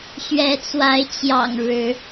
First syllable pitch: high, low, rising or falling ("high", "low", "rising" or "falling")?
rising